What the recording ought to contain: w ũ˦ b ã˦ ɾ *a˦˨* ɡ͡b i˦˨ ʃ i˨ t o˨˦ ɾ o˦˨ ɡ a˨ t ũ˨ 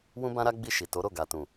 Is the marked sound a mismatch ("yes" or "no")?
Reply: yes